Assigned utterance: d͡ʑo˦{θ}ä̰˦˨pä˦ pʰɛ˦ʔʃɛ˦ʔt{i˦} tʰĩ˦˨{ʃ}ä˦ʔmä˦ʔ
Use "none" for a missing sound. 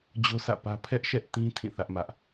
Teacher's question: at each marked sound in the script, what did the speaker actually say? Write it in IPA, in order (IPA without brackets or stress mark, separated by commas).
s, ĩ˦, θ